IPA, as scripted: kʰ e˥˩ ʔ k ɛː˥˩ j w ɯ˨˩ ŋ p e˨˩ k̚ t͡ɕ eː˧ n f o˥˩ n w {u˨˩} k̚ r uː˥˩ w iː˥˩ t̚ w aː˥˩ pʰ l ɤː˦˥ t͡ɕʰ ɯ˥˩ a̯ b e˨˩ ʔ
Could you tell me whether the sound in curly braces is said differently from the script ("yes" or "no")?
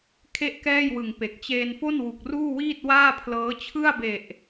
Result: no